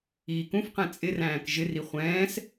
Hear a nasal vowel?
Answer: yes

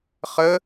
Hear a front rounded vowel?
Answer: no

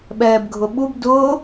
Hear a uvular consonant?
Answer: no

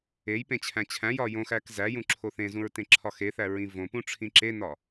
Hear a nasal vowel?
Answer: yes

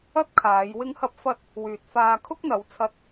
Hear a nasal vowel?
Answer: no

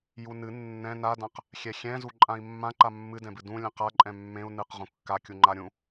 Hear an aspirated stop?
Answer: no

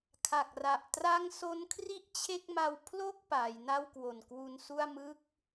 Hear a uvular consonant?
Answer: no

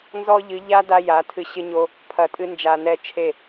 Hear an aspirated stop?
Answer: yes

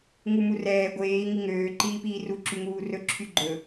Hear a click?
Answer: yes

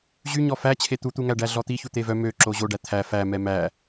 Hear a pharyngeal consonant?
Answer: no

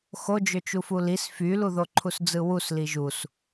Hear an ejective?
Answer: no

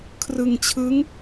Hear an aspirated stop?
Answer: yes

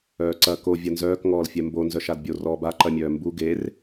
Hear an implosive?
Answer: no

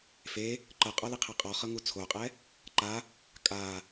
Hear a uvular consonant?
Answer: yes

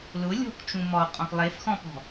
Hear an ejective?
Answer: yes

